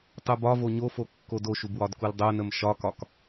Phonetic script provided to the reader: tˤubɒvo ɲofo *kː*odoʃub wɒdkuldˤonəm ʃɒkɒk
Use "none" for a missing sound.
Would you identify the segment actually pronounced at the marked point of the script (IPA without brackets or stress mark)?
kː